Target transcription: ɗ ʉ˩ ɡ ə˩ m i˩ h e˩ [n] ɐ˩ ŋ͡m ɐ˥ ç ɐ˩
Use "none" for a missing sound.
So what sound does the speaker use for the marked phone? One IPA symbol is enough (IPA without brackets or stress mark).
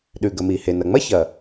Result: n